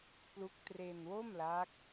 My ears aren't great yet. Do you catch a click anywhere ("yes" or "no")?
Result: no